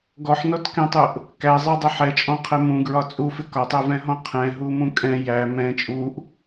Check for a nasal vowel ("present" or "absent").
present